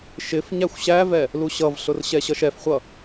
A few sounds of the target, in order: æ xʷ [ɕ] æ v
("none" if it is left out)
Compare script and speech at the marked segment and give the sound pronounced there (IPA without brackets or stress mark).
ɕ